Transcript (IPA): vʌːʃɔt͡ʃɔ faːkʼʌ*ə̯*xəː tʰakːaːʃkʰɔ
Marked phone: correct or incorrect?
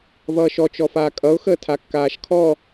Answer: incorrect